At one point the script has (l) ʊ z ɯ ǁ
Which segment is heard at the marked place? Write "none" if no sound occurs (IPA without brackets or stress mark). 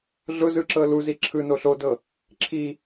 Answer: ɮ